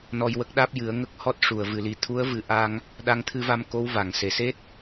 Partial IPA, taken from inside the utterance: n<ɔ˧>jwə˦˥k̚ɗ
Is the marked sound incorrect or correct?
correct